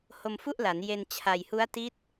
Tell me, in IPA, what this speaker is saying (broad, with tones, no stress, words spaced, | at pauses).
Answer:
ho˧mfu˥˩ʔla˩˦n je˧n t͡ɕʰa˨˩jhu˦˥a̯ti˦˥t̚